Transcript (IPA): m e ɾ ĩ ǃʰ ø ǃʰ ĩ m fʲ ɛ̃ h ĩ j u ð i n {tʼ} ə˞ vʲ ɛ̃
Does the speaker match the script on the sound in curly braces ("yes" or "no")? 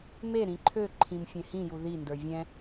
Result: no